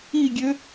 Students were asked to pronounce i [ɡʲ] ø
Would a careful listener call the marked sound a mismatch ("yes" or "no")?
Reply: no